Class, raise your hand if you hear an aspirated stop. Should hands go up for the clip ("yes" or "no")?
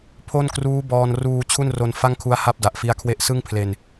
yes